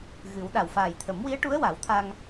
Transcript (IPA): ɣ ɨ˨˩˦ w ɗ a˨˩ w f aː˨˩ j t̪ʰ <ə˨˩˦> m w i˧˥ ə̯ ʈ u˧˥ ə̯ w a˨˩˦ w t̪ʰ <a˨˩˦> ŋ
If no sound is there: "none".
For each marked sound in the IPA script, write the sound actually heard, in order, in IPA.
ə˨˩˦, a˧

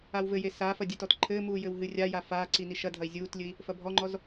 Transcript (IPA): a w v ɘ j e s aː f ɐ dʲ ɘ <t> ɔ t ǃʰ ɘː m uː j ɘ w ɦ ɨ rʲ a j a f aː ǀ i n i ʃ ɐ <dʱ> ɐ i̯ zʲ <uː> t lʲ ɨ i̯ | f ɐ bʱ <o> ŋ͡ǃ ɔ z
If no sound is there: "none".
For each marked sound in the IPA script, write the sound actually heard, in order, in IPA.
t, dʱ, uː, ɔ

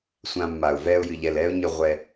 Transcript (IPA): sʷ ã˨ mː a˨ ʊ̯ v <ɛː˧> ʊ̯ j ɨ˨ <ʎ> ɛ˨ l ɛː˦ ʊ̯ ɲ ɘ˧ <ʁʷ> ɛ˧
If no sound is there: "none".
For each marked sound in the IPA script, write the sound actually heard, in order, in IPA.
ɛː˧, ʎ, ʁʷ

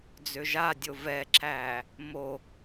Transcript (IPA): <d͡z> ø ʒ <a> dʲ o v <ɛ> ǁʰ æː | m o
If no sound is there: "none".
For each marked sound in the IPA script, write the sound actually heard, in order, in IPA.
d͡z, a, ɛ

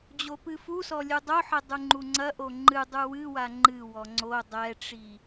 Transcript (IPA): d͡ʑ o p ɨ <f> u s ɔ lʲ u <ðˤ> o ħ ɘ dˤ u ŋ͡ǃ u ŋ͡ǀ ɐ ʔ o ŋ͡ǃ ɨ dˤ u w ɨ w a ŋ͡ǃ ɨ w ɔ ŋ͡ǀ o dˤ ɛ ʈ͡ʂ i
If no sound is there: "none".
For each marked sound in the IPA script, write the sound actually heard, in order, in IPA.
f, dˤ

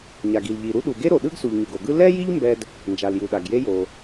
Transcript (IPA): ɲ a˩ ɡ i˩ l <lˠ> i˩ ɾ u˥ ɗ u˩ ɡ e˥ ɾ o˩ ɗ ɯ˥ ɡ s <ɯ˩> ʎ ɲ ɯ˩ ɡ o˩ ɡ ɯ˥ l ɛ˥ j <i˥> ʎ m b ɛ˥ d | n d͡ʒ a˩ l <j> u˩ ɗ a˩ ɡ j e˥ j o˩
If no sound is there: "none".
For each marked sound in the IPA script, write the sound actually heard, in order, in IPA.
ʎ, u˩, i˥, j

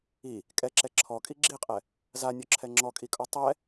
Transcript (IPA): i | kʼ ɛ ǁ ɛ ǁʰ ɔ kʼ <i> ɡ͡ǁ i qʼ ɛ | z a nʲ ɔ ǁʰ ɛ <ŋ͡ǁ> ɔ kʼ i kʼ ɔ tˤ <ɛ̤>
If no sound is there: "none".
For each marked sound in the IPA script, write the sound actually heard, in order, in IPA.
i, ŋ͡ǁ, ɛ

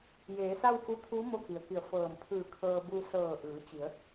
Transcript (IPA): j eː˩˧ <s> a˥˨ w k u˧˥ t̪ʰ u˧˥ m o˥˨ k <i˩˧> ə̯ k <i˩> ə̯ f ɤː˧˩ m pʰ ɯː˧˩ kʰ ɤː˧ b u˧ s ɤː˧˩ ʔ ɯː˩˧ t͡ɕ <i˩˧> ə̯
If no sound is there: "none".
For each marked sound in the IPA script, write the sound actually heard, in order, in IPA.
s, i˩, i˧˩, i˩˧

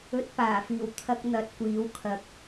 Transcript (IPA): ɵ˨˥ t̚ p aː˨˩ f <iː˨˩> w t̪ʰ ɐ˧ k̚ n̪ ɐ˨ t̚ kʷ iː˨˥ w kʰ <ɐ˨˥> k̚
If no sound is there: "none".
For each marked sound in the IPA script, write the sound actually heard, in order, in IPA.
iː˨˩, ɐ˨˥

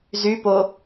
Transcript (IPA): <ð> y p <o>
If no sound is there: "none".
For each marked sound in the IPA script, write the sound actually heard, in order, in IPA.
z, o

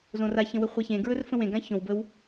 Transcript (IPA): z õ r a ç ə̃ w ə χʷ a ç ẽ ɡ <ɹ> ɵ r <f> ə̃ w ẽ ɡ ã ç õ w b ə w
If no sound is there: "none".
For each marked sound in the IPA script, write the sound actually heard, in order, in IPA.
ɹ, f

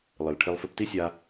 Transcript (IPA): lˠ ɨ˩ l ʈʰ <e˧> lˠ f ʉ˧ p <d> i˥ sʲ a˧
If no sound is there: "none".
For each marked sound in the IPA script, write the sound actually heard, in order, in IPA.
e˧, t

